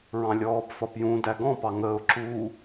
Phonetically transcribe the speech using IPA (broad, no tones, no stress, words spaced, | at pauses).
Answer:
ɹɑ̃lʲɔːbfɒp jũ dæɡɔ̃pɑ ŋəːʊ̯ ǁu